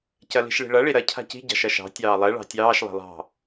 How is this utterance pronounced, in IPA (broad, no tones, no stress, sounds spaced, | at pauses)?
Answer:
c ɐ l i̤ ʃ ɭ i̤ ɭ ɐ ɭ i ɾ ɐ cʰ a̤ c i̤ ɟ ɑ̤ ʃ ɐ ʃ ɑ̤ tʲ ɑː lˠ ɛ ɭ ɑ̤ tʲ ɑː ʃ lˠ ɛ̤ lˠ ɑ̤